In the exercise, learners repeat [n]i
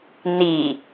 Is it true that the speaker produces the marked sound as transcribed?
yes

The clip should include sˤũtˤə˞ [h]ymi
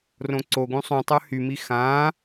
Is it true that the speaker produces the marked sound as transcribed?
yes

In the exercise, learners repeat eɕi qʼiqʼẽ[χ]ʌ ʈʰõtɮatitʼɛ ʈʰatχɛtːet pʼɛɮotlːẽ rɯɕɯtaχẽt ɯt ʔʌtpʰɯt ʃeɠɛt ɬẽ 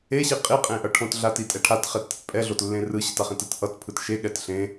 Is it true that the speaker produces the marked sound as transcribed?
no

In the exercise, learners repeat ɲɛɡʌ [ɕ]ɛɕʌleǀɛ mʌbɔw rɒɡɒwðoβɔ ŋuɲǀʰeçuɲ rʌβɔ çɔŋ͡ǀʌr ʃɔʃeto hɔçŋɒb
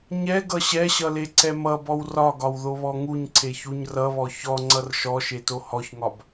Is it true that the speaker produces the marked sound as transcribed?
yes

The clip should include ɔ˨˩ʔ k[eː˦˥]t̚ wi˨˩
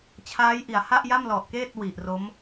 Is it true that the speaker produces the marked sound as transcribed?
no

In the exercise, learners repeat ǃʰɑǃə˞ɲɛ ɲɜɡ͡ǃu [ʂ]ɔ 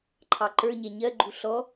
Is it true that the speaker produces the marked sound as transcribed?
no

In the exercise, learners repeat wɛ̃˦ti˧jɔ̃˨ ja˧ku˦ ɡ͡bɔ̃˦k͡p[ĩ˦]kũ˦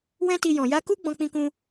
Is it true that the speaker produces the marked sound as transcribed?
yes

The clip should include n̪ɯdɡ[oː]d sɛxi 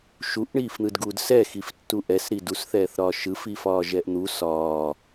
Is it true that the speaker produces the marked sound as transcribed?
no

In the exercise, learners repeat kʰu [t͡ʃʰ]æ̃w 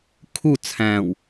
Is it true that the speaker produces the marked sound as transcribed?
no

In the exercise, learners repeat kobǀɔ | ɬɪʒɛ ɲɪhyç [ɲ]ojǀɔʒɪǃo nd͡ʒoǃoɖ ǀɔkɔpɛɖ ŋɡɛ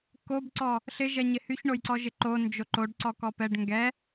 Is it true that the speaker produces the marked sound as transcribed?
no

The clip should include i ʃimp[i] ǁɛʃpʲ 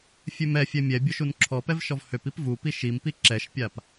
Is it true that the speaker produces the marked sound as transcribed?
yes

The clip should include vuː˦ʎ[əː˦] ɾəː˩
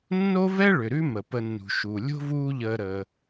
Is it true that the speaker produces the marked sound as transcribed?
no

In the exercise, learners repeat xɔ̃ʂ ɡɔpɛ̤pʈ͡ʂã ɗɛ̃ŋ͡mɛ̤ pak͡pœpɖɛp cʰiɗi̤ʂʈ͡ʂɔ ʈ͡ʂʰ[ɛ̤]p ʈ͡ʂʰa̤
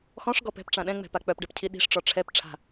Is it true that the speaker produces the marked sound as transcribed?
no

